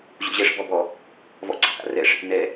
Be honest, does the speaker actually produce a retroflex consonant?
yes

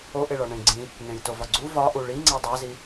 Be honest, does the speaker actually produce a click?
yes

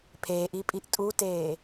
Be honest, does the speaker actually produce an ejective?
yes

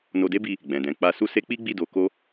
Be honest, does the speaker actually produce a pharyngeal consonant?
no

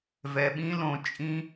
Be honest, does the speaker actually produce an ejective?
yes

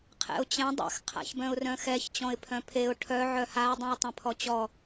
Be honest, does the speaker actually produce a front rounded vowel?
yes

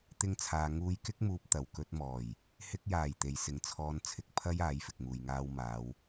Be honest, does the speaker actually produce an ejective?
no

